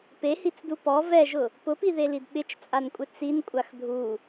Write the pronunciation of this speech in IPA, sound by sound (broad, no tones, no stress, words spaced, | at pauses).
pehit͡sdu pɔ vɛʒʊ | pʊpiðelid ɓɪt͡ʃt͡sʼankʷʼɪ t͡sinkʷʼax dʱu